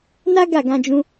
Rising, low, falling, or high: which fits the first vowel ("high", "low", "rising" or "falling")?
high